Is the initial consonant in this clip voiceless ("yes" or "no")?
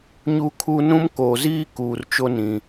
no